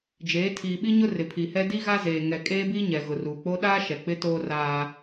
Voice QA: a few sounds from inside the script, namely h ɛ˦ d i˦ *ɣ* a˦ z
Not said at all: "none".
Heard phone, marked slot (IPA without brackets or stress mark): ɣ